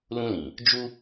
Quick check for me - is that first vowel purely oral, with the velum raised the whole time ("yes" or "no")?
no